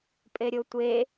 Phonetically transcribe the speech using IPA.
pʼeɾʲotʷe

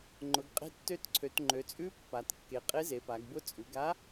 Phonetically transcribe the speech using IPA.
ŋ͡ǃʊ˩˧ɡ qʼe̤˧˥tːø˧˥tǀʰø˩˧t ŋ͡ǃø˩˧t͡sʼʉ˧˥ pːa˩˧tkːe˩˧ qʼe˧˥ze˩˧pa˩˧ɡbʊ˧˥ t͡sʼʉ˩˧ɡa˧˥

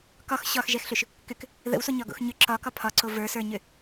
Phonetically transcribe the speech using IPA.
kɒx ɕɒxʒɛxɬʏʃ | kʏk | ðə̰wsoɲɒɡo̰x ɲʏ ǁɒkɒ pʰɒǀo və˞sə˞ɲʏ

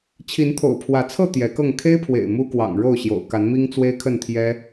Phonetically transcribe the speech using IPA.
t͡ɕʰi˨˦nt̪ʰo̰˨˩ʊ̯pʰwä˨˦t͡sʰɤ˥˨ t̪jɛ˨˦kɤ˥˨ŋ kʰe˦ɪ̯pʰwḛ˨˩ɪ̯ mu˦kwɑ̰˨˩ŋ ɻo˥˨ʊ̯ɕjo̰˨˩ʊ̯ ka˨˦nmi˦ŋ t͡swe˦ɪ̯kʰə˥˨nt̪ʰjɛ˦

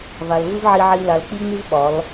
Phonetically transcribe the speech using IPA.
va˨lvɯ˦vʕi˧ʕi˧ la˨l k͡pi˦ŋ͡my˦v ɓɒ˨˦l

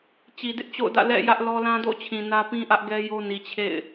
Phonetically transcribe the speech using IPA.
t͡ɕi˨dɪ˦ʔt͡ɕo̰˦˨ʊ̯dä̰˦˨ lɛ̰˦˨ jä˦ʔlɔ˦ lã˦do̰˦˨t͡ɕʰĩ˨ nä˦pĩ˦ʔä˦ʔɡɛ˦ jo˦ni˨ t͡ɕʰḛ˦˨ɪ̯

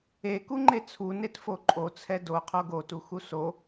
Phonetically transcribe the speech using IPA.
ekuŋ͡ǃe t͡sʰunetfo ǃʼot͡sʰɛ doqʰo ɡotuxu so

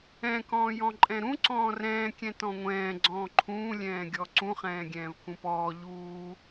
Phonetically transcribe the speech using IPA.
ɛ̃ kɔ̃ːjɔ̃ǃʼɛ̃ɾũ ǀɔ̃ːrɛ̃ː kʲɛ̃tɔ̃ŋʷɛ̃ː ɡ͡ǀɔ̃ːǃʰũː lʲɛ̃ːɡʲɔǀũ χɛ̃ːɡʲɛ̃ːvkũpɔː ʎuː

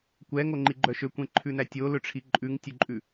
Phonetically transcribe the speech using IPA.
kʷɛŋoŋ͡ǃiɡ͡ǃœ ʃøkʷẽǃʰʉnæ tʲolɵʈ͡ʂʰi ǃʼʉŋtʲɵǃʼʉ

